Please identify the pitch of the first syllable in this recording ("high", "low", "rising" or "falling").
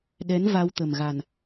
rising